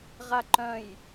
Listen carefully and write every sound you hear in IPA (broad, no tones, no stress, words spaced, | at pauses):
ʁaǃœ̃j